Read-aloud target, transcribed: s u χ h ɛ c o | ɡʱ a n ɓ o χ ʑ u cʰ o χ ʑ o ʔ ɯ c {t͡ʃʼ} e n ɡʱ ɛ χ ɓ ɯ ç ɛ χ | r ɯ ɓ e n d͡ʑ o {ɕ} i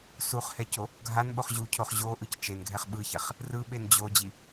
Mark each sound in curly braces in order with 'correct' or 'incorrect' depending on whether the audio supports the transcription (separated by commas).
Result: incorrect, incorrect